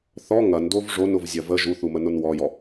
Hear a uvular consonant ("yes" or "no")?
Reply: no